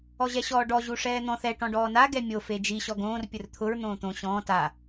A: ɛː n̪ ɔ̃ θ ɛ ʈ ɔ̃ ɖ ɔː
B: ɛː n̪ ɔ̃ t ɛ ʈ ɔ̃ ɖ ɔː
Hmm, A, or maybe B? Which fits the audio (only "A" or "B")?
A